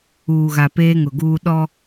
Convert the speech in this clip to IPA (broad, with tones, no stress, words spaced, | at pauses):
uː˨ɣa˨ peː˦ŋʊ˨ɡuː˦ ɗɔ˦